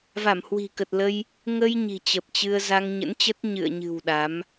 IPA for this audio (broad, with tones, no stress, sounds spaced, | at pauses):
v a˧˩ m h w i̤˨˩ k ə˨˩ t̚ l ə˧ j | ŋ ə˧ j ɲ i̤˨˩ t͡ɕ ə˨˩ p̚ t͡ɕ ɨ˧ ə̯ z a˧ ŋ ɲ ə̰˧˥ n t͡ɕ ə˦˥ t̚ ɲ ɨ̰˧˨ ə̯ ɲ ɨ̤˨˩ w ɗ a˨˦ m